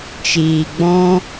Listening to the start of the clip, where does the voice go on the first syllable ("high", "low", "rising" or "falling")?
low